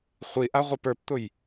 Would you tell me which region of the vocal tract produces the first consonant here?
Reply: uvula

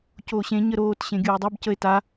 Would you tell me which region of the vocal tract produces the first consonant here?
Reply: palate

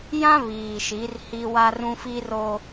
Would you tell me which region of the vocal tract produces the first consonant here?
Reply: palate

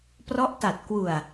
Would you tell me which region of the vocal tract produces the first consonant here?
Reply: lips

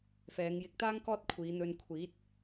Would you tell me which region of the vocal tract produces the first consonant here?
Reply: lips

